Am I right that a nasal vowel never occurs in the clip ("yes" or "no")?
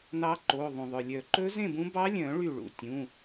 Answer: no